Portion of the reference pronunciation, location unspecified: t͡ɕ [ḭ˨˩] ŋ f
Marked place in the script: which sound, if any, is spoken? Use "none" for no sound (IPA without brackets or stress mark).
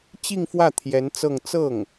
i˥˧